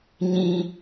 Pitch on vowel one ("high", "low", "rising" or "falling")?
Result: high